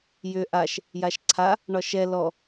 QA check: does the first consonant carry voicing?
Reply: yes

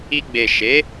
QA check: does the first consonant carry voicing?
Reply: yes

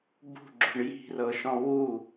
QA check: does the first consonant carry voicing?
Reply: yes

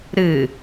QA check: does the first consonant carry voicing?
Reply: yes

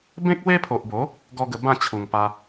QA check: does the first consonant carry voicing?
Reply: yes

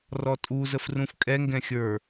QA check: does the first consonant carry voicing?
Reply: yes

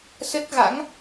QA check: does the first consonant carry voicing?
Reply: no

